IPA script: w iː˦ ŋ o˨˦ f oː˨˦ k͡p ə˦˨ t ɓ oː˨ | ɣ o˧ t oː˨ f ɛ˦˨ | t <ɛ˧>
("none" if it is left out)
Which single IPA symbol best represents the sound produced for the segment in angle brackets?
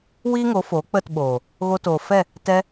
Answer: ɛ˧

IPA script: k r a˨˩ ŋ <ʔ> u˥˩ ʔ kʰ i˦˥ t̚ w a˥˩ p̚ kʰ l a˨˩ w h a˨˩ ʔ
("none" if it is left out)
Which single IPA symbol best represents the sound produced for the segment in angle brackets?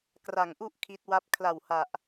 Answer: ʔ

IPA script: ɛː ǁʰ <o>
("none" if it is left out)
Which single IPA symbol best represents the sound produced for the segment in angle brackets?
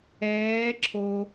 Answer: o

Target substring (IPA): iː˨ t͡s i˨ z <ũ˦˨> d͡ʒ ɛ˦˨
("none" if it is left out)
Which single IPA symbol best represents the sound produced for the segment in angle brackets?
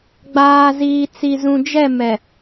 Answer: ũ˨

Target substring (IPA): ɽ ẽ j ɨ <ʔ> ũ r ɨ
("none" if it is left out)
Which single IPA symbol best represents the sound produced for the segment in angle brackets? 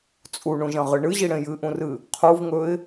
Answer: ʔ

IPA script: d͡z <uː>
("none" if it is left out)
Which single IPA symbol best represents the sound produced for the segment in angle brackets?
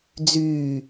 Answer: yː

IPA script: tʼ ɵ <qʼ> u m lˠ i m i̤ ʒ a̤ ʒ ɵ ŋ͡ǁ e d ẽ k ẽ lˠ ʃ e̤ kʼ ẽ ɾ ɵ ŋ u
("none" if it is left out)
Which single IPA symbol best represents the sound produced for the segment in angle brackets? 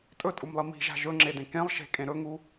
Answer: tʼ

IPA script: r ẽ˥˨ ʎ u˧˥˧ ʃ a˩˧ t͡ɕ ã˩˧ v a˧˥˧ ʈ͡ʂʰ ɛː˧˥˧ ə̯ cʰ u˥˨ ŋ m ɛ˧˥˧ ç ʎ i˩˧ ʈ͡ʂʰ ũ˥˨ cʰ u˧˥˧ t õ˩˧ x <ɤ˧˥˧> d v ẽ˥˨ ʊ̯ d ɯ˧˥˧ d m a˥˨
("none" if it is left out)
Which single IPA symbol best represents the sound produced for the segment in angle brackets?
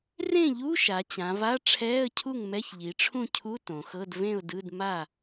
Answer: ɤ˧˥˧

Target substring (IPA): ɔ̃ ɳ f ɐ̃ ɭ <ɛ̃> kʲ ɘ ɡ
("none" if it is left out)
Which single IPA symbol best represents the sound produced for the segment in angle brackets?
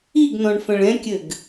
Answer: ɛ̃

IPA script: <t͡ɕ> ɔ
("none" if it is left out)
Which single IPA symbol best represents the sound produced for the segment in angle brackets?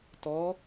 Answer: t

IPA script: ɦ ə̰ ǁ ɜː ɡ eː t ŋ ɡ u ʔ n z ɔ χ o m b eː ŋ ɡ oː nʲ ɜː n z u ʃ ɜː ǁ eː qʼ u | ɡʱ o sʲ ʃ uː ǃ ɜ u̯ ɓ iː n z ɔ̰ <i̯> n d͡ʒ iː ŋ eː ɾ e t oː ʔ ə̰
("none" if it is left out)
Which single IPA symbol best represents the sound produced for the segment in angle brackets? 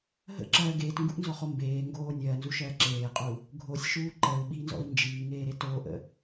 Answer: i̯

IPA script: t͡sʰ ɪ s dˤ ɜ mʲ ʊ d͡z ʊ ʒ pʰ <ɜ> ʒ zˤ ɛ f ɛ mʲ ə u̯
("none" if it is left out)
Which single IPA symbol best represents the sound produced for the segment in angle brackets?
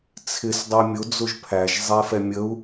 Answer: æ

